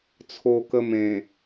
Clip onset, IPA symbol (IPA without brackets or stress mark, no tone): t͡sʰ